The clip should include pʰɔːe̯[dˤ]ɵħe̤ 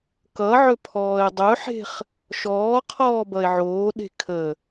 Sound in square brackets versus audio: correct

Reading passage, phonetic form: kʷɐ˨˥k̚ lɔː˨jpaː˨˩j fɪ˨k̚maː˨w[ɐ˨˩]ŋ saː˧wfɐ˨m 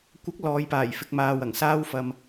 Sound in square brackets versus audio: correct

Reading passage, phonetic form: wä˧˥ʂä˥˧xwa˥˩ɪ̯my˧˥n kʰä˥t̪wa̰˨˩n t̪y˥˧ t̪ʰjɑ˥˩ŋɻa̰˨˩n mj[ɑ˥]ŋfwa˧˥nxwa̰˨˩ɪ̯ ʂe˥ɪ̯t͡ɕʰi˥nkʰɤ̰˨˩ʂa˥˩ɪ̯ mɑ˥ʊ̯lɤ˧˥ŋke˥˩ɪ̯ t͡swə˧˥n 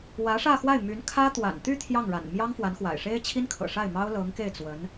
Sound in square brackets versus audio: correct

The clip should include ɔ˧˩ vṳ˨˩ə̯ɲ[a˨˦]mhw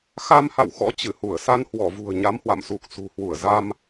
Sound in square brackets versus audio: correct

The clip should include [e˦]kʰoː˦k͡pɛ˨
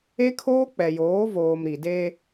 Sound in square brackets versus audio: correct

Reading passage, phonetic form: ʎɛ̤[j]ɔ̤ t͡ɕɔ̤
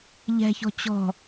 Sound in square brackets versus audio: incorrect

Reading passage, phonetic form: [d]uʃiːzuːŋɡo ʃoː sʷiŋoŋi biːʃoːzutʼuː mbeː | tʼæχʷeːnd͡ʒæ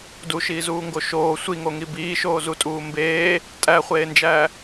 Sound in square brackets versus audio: correct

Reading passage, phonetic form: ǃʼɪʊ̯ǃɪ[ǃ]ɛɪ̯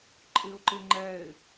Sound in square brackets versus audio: incorrect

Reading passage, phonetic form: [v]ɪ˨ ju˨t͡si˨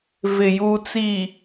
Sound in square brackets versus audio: correct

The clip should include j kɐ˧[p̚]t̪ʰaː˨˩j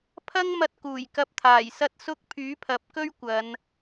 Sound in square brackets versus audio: correct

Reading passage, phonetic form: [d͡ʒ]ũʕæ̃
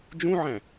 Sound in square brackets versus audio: correct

